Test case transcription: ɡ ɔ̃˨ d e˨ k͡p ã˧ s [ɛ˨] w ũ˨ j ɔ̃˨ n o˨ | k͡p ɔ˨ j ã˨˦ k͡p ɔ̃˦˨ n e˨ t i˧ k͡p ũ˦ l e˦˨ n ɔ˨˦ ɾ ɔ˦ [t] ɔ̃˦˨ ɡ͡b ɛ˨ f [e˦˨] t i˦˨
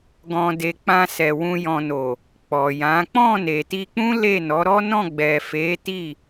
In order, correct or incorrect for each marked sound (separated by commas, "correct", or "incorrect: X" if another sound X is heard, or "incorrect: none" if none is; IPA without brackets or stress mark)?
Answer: correct, incorrect: n, incorrect: e˨˦